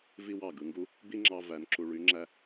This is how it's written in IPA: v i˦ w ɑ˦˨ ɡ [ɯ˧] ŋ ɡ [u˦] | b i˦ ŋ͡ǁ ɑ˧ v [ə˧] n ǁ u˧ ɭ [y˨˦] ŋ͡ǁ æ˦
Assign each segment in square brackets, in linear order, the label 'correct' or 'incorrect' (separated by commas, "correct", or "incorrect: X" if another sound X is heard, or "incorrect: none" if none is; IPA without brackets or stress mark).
correct, correct, incorrect: æ˧, correct